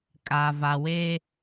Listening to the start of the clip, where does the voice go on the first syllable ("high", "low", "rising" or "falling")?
low